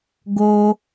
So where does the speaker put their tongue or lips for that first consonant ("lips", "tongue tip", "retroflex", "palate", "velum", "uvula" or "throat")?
velum